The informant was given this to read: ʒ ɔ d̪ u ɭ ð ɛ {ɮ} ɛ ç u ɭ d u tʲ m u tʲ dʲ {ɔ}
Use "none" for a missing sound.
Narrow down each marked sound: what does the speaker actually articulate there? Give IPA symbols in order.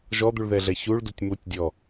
ɮ, ɔ

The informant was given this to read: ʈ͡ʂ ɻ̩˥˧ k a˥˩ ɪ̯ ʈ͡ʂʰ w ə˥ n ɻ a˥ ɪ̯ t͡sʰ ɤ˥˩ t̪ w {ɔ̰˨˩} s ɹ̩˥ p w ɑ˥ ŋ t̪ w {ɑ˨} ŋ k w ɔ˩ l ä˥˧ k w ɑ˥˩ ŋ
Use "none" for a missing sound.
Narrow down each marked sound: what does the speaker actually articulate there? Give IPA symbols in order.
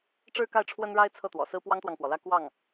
ɔ̰˨˩, ɑ˨

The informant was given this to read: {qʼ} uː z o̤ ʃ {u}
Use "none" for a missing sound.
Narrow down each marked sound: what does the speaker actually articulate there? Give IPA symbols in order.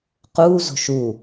q, u

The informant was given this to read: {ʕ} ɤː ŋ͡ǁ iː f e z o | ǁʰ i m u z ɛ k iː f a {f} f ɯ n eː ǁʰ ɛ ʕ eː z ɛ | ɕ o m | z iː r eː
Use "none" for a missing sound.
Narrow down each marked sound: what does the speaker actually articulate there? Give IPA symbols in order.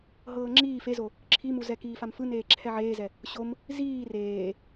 ɦ, m

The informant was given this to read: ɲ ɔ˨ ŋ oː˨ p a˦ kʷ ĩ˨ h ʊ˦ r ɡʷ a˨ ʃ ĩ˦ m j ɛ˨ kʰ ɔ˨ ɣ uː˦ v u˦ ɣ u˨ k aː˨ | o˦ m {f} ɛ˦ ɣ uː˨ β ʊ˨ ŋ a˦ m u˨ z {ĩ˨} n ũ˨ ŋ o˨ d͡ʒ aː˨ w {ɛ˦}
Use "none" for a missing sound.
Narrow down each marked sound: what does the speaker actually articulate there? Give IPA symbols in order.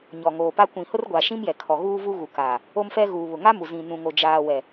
f, ĩ˨, ɛ˨

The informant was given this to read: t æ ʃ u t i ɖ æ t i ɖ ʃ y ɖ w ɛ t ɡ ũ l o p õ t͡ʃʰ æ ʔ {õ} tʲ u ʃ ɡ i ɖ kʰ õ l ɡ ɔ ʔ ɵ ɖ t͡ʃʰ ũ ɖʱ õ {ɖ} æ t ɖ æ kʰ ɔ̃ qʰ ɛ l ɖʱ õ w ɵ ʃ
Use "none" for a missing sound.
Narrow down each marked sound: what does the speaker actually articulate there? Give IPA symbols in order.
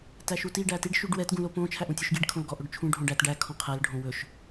ũ, ɖ

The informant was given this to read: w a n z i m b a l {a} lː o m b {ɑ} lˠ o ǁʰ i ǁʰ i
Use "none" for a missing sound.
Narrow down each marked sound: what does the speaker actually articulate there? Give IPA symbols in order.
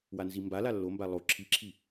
a, a

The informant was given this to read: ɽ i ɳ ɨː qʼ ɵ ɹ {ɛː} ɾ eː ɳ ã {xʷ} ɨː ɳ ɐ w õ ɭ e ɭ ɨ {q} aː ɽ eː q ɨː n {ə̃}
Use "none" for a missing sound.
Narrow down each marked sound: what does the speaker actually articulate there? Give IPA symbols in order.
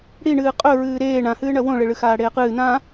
ɨː, h, x, ã

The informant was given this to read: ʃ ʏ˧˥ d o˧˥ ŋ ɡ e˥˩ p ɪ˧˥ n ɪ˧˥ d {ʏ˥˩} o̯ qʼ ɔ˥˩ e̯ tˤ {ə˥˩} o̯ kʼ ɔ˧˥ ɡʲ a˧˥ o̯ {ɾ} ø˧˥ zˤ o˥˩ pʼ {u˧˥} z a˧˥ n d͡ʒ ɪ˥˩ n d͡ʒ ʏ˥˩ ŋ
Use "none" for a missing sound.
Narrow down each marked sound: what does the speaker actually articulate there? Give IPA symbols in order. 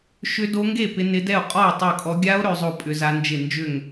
ɛ˥˩, ɪ˥˩, ɾ, ʏ˧˥

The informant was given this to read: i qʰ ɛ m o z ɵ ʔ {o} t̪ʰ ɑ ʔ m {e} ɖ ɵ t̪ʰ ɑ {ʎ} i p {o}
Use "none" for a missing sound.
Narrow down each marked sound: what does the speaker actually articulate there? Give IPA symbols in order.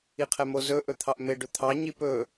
ɵ, e, ɲ, ɵ

